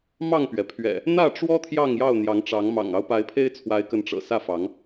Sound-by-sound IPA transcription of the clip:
m ɑ˥˨ ŋ p ɥ ɛ˩ pʰ ɥ ɛ̰˨˩ | n̪ ä˥˨ ʈ͡ʂ w ɔ˦ t̪ʰ j ɑ˥˨ ŋ j ɑ˥˨ ʊ̯ n̪ j ɑ˨˦ ŋ ʈ͡ʂ ɑ˨˦ ŋ m ɑ̰˨˩ ŋ ɑ˦ ʊ̯ p a˨˦ ɪ̯ pʰ e˦ ɪ̯ t͡sʰ w a˨˦ ɪ̯ k ə˨˦ n ʈ͡ʂ ɤ̰˨˩ s ä˥˨ f ɑ˨˦ ŋ

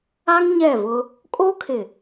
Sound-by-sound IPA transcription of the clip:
a˦ ŋ ɲ ɛ˦˨ v ʊ˦ | kʼ o˦ kʰ ɪ˨

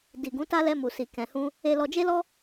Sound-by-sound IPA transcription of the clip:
d i˨ ɡ ũ˨˦ t a˦ l ɛ˧ m u˨ s i˨ k ɛ̃˨ h ũ˧ | e˨ l ɔ˨ d͡ʒ e˧ l ɔ˧

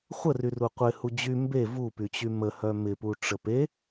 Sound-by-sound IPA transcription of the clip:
χʷ ə r y r u qʷ ɪ h u d͡ʑ y m b e v u p y t͡ɕ y m ə h œ m ɪ p u ʈ͡ʂ ə p e

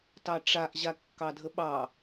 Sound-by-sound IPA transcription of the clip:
t ɑ ʈ͡ʂ a ʔ ʑ a kː ɑ dʱ ə ɓ ɑ

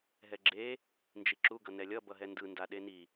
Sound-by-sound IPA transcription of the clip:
ɦ ɛ ɡ͡ǁ e | n d͡ʒ i ǁ u ɡ ʌ n ɛ lʲ ʌ b ʌ ɦ ɛ n d ɯ n d a ɗ e n i

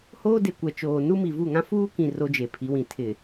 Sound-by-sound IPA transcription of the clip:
h oː˦ d e˨ kʷ ɛ˨ t͡ʃ oː˨ n u˦ m i˨ v u˦˨ ŋ ã˦ f uː˦ k ĩ˨ r o˦ d͡ʒ e˨ pʰ i˨˦ w ĩ˨ tʰ ɪ˨

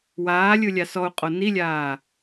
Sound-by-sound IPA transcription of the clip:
w aː lʲ ɯ lʲ a s ɔ u̯ qʼ o n i lʲ aː

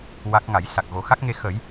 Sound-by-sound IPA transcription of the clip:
w a˦˥ k̚ ŋ a˨˩˦ j s a˨˩ k̚ ɣ o˨˩˦ x a˦˥ k̚ ŋ e˧ x ə˨˩˦ j

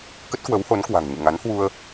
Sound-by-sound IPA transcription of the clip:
k ə˦˥ t̚ k w ə˨˦ w h o˨˦ n k w a̤˨˩ ŋ ɲ ɨ̰˧˨ ŋ a˨˦ n h w u˧ ə̯

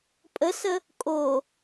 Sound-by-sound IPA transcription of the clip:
pʼ ə s ə | kʼ o

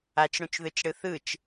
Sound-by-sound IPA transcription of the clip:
a t͡ʃ ɽ ũ t͡ʃ ð ɯ t͡ʃ ɽ ɯ θ ɯ t͡ʃ

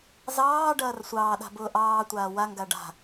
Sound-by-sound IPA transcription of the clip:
z ɑː ɖ ɐː r sʷ ɑː ɗ a̤ b ʊː ʔ ɑː tʷ aː w a ŋ ɡ a ɖ a̤

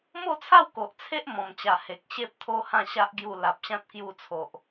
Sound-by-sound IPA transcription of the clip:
m o˥˧ t͡sʰ a˥˧ w k o˨ ʔ t͡sʰ e˦ ʔ m ɔ̃˨˩ m t͡ɕ a˨˩ h e˨ k̚ ɕ e˦ p̚ t̪ʰ o˦ h ã˥˧ ɕ a˦ ʔ ɡ j u˧ l a˨ p̚ ɕ ã˦ t̚ k j u˧ t͡sʰ o˨ ʔ

